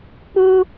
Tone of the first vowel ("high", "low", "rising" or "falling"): high